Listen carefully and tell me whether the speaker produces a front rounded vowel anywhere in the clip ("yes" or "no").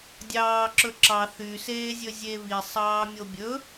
yes